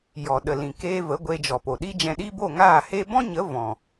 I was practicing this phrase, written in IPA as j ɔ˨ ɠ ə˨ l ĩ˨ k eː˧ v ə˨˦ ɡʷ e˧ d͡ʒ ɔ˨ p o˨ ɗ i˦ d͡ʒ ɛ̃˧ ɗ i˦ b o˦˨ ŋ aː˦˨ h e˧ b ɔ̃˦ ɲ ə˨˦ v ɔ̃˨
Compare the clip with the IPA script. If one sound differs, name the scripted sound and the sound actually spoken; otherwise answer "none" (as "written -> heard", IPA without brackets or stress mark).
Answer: ɠ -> ɗ